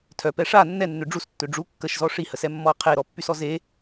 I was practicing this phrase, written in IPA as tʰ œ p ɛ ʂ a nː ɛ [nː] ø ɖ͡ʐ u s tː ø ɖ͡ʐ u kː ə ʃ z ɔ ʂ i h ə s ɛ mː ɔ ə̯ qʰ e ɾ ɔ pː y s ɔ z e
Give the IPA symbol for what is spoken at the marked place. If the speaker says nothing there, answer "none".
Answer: nː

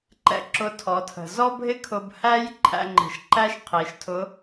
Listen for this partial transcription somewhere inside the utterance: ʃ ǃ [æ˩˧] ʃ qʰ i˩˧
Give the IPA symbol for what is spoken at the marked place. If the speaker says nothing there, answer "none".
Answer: æ˥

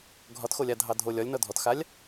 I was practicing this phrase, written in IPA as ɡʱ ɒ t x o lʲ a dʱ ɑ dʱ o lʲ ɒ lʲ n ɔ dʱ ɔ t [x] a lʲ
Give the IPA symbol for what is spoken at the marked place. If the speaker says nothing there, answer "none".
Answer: x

